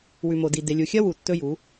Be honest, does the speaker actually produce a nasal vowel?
no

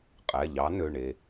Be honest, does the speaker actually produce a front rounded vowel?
yes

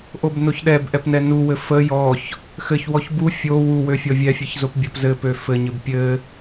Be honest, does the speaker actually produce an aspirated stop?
no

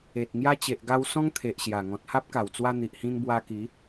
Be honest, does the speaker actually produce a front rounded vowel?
no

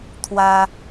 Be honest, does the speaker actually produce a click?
no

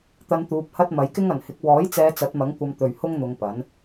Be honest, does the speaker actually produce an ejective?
no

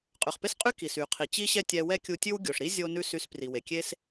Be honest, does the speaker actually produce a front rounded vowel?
yes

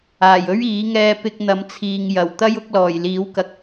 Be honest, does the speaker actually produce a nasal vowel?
no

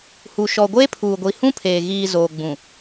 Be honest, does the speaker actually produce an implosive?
no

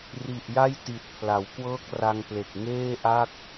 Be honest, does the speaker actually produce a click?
no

